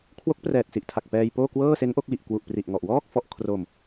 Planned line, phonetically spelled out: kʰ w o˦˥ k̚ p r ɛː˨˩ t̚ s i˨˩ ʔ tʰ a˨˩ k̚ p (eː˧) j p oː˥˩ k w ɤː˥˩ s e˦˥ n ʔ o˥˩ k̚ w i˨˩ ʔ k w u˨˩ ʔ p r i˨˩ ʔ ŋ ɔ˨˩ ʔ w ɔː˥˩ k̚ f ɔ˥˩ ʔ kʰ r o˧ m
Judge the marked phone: incorrect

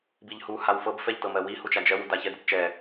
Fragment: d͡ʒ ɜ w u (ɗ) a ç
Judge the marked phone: incorrect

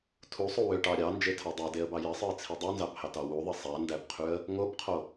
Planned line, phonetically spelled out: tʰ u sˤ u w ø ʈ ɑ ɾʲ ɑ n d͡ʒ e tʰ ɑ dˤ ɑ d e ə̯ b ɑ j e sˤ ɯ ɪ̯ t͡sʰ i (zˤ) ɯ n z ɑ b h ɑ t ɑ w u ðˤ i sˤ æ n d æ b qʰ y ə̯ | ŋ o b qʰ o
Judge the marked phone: incorrect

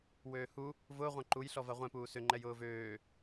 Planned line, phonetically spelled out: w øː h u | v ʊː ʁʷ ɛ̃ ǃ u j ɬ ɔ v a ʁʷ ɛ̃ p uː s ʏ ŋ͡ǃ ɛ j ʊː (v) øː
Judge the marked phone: correct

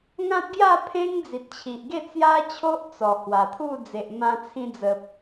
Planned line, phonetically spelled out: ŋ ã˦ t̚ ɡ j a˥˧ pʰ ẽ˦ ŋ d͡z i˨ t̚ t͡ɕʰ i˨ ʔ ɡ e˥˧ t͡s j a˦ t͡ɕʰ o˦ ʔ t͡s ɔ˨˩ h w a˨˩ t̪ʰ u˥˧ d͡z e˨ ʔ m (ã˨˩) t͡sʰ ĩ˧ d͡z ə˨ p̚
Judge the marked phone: incorrect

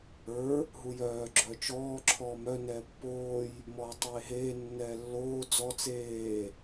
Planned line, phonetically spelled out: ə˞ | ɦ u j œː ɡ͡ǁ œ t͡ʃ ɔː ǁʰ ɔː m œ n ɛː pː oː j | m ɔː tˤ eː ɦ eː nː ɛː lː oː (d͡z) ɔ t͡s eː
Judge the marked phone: correct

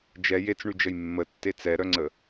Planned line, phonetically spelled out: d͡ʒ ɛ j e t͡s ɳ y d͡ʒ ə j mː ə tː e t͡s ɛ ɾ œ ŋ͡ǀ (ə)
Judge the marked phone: correct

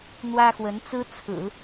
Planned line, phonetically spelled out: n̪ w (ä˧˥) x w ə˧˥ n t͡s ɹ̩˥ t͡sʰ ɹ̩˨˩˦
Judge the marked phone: incorrect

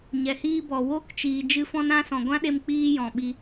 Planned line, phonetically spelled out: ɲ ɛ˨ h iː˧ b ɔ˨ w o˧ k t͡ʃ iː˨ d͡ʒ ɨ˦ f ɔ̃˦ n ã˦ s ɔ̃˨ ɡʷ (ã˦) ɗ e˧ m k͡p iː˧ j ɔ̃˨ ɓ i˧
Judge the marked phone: correct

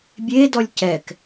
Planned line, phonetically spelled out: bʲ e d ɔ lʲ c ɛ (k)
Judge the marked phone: correct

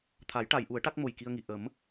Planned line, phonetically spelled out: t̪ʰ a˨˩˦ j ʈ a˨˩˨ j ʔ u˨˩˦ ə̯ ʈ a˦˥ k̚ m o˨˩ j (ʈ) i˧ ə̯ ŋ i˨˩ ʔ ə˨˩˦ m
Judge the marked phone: incorrect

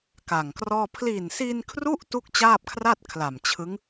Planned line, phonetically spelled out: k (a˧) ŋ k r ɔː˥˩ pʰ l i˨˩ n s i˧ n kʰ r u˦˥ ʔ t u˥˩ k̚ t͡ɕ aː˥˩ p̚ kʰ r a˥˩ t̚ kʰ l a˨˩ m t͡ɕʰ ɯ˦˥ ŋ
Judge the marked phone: incorrect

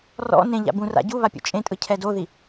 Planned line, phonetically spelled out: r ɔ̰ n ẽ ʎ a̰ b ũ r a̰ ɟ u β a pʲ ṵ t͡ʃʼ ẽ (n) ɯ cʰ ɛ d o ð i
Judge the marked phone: incorrect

